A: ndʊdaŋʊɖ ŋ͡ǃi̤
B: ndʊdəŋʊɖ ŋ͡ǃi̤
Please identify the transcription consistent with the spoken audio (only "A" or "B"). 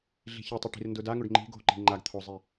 A